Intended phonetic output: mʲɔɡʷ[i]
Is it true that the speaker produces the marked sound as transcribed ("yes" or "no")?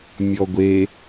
no